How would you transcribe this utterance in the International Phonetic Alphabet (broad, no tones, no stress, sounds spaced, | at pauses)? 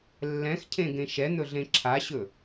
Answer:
lː ɛ̃ x cʰ ẽ ɡ ẽ ʃ ɛ n̪ ɵ ɮ ẽ ǁʰ a ɕ ɵ